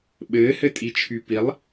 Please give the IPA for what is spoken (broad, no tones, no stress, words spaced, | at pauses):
ɓɘːhɘtʼit͡ʃʰy pilˠ